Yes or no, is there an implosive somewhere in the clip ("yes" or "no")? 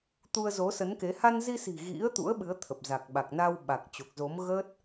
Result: yes